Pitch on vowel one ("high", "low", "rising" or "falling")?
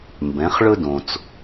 rising